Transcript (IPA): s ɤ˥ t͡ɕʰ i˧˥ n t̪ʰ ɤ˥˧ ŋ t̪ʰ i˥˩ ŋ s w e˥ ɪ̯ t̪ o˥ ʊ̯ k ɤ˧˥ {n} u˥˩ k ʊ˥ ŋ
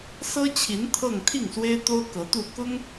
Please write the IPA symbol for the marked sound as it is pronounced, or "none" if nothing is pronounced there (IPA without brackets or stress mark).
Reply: t̪